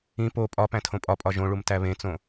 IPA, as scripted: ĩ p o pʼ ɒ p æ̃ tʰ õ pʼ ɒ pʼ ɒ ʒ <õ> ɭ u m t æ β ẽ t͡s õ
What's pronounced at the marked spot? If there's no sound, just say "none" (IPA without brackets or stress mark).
õ